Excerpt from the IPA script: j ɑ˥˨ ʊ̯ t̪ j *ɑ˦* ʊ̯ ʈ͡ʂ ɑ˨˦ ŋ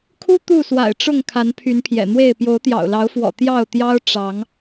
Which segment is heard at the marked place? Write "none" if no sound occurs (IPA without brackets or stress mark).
ɑ˦